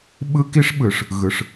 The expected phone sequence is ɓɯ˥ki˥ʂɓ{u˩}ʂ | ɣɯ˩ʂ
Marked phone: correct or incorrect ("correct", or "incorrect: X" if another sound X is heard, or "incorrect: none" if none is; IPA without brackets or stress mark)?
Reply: incorrect: ɯ˩